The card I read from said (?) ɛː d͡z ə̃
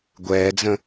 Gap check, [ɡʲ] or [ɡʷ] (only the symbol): ɡʷ